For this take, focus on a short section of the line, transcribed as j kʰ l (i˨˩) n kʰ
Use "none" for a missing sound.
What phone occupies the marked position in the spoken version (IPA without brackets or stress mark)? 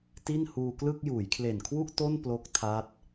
e˨˩